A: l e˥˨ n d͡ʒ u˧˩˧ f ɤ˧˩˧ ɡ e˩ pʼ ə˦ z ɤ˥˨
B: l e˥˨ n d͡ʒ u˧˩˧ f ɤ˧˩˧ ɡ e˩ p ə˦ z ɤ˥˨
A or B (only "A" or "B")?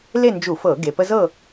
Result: B